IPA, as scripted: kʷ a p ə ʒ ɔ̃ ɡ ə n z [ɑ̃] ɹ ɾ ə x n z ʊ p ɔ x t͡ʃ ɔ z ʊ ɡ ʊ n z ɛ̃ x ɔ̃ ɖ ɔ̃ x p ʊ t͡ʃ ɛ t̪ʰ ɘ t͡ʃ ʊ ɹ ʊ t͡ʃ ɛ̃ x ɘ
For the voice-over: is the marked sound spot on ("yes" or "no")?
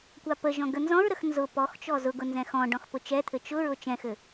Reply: no